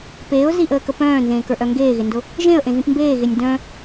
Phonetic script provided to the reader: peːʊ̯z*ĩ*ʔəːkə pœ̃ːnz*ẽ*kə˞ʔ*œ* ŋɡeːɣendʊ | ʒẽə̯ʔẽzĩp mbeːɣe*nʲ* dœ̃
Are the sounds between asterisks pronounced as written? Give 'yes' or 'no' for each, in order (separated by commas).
no, no, yes, yes